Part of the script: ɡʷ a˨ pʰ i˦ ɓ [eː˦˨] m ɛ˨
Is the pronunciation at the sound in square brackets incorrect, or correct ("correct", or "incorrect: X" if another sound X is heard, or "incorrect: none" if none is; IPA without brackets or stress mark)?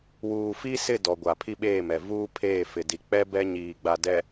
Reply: correct